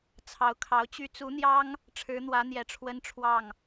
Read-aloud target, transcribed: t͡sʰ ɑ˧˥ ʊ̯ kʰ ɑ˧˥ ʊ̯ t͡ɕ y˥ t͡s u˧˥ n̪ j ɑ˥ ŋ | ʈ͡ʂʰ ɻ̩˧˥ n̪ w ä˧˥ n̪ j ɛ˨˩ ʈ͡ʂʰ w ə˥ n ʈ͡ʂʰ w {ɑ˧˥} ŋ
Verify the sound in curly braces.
incorrect: ɑ˥˩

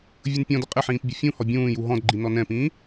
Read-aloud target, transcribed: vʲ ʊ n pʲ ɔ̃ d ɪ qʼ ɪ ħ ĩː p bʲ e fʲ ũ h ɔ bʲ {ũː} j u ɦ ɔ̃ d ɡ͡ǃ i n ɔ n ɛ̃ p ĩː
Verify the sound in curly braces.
correct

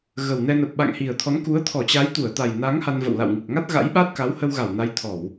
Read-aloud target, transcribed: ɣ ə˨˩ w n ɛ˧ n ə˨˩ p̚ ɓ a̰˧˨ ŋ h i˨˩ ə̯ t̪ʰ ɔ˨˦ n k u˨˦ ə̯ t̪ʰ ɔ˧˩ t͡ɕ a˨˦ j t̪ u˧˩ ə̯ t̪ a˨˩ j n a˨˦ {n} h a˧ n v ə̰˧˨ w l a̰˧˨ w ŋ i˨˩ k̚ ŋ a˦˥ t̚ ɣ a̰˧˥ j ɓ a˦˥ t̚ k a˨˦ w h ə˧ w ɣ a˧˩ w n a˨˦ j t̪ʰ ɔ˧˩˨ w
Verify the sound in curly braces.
incorrect: ŋ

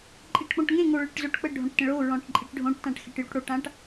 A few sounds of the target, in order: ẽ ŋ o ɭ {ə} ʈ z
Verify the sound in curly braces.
correct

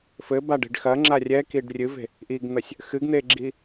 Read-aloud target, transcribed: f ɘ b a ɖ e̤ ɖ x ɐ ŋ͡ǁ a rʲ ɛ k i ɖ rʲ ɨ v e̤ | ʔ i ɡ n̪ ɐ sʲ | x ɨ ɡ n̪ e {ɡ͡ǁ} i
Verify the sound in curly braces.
correct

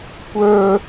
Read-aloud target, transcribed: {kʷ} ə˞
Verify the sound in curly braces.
correct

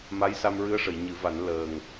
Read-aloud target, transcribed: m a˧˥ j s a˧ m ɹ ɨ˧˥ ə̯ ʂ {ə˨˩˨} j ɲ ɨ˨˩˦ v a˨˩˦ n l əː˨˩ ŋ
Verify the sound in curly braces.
correct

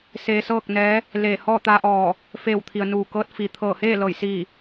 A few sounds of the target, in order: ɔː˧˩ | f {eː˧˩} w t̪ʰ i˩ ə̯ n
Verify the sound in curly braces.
correct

